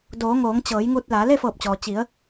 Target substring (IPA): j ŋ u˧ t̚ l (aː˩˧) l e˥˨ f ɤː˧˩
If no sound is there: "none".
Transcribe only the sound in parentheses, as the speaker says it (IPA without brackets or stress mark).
aː˩˧